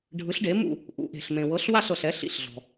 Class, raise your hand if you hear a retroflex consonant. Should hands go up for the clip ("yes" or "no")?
yes